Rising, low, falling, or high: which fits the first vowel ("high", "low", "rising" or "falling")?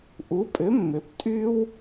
rising